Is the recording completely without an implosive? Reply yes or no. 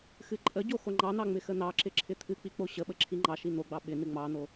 no